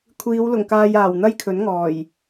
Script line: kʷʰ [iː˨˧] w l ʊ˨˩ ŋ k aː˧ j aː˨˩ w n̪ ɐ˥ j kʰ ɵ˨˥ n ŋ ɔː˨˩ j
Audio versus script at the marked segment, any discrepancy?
no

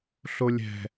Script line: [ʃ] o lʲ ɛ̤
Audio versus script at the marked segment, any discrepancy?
yes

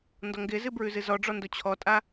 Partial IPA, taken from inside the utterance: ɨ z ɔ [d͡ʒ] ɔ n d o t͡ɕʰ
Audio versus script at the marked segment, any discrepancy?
yes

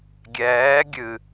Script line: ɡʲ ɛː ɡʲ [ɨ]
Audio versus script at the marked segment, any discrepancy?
no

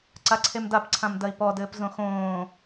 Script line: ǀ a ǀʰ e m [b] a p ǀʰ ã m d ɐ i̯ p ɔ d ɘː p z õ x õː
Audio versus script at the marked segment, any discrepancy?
yes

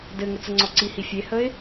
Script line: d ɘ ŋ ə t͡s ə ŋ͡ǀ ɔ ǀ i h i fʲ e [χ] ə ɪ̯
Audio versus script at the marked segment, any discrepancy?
yes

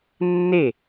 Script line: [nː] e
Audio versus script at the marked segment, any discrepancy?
no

